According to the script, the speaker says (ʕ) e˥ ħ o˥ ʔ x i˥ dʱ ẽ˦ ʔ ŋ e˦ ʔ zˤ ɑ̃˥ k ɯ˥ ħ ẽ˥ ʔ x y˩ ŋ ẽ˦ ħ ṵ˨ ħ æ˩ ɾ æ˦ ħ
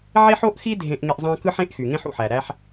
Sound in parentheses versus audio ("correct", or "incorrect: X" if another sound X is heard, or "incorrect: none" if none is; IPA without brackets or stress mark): correct